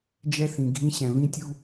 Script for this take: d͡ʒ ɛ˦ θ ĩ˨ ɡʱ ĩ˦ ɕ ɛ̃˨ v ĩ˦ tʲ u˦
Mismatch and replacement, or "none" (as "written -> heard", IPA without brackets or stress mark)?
none